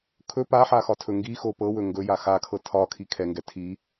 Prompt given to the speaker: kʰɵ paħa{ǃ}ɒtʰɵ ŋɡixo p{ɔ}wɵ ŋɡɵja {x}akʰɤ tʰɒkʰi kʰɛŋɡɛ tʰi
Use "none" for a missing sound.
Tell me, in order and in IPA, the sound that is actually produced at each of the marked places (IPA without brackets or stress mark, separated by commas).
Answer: x, ɤ, x